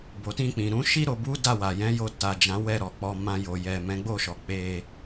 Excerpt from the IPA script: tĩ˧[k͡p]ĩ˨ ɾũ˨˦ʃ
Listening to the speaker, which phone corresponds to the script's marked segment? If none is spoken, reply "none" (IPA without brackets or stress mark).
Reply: k͡p